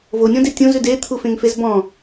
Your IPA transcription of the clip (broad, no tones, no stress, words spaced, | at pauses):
vonʲɔ̃de tʲõzʉ det̪ʰufẽŋfez bɔ̃